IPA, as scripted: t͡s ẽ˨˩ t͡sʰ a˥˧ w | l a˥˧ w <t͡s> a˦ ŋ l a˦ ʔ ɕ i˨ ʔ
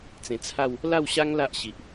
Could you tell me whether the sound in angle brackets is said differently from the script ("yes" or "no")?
yes